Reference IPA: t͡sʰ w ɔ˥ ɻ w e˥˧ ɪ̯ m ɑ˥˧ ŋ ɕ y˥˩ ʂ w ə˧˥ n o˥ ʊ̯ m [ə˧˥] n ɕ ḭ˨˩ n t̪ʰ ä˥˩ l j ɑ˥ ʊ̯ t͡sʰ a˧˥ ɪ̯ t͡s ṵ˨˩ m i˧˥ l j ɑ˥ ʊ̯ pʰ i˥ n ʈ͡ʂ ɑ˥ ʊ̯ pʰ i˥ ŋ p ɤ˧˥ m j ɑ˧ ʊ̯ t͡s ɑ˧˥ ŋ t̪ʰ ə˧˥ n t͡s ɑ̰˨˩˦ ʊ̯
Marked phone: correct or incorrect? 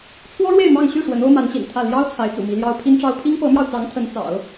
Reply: incorrect